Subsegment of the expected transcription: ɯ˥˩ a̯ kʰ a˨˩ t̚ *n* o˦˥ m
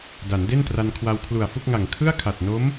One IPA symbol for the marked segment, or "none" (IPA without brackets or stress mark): n